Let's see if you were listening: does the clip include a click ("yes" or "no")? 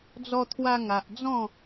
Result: no